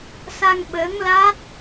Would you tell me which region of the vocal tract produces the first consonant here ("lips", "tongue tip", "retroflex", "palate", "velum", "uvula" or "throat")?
tongue tip